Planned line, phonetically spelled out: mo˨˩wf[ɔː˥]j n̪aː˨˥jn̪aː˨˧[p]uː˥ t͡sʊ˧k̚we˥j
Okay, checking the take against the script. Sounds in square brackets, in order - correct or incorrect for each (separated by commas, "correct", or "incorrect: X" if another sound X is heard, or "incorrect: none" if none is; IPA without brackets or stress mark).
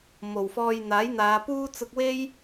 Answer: incorrect: ɔː˧, correct